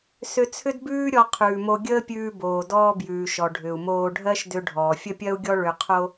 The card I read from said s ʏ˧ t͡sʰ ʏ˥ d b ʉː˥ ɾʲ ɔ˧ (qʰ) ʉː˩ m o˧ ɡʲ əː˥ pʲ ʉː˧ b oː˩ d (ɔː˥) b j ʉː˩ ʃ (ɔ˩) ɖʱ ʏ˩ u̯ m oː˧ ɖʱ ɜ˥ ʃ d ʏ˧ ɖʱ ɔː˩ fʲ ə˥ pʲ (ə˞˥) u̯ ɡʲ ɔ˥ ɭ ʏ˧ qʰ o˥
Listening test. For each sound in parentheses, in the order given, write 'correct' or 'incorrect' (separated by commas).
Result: correct, incorrect, correct, incorrect